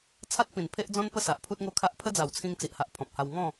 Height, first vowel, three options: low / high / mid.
low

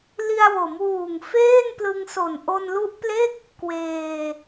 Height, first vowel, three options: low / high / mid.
high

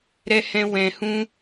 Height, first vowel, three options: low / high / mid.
mid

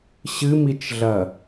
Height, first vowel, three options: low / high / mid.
high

